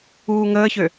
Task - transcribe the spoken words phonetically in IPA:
uː ŋ əː ç ø

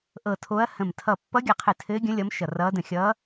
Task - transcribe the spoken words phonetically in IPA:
ʔ ɤ˧˩ tʰ o˧˥ ɐ̯ h ə̃˧˩ m tʰ ʌ˧˩ pː ʌ˧˥ ɡʲ ʌ˧˩ qʰ ɘ˧˩ tʰ ɘː˧˥ ɡʲ ə̃˧˥ lʲ ʌ˧˥ m ʃ ʌ˧˩ r ʌː˧˥ d ə̃˧˩ xʲ ʌː˧˥

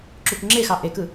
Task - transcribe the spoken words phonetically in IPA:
ǁ u k ŋ͡ǁ e x ɑ ʔ e k ɯ

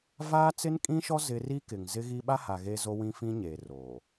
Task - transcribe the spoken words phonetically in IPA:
v aː˦ t͡s ɪ˦ n kʼ ĩ˦ ʃ ɔ˦ z ɪ˦ r i˦ k ɪ˨ ŋ z ɪ˦ ɣ i˦ ɓ a˦ h a˨ ɣ e˦ z o˦ w ĩ˦ f ĩ˦ ɲ eː˨ r oː˨

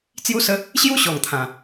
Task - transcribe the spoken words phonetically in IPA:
t͡s j u˥˧ s ə˦ | ɕ j u˥˧ ɕ ɔ˨˩ ŋ t̪ʰ ã˨˩

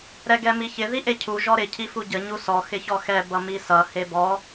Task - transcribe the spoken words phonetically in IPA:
ɾ ɛ ɡ ɛ m i ç ɪ ð i ʔ e cʰ u ʒ ɔ ɾ ɪ cʰ i f u ɟ ə ɲ u s ɔ x ɪ ç ɔ x ɛ b ʌ m i s ʌ h e b ɔ

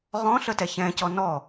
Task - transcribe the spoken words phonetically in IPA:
ʁ ɔ̃ ɬ ə t ɛ ç ɛ̃ c ɔ n ɔ

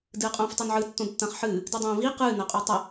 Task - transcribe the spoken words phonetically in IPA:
d ɨː qʼ õː f tˤ o n ʕ ɨ tː õ d tː ɐ̃ː χ ħ ɨː | d ɨ dˤ õː v i q ɨː n ɐ qʼ o tˤ ɐ

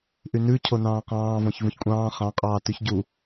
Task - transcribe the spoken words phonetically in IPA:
ʔ y n ʉ cʰ o n ɑ̃ː q ɑ̃ː v ɔ̃ ç v ũ ç kʷʼ ɑ̃ː χ ɑ̃ qʼ ɑː t ʉ ç ɟ u

